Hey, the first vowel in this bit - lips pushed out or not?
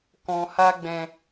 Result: yes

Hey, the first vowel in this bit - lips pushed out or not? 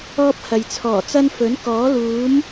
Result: yes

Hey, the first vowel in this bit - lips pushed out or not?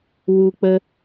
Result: yes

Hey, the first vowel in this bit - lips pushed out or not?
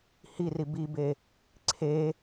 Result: no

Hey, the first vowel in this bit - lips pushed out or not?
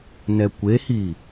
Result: no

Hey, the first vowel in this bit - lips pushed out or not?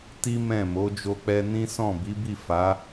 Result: no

